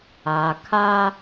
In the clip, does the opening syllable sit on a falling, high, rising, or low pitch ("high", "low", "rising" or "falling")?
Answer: low